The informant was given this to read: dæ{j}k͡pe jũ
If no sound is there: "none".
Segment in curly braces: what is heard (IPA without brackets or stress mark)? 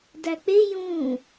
none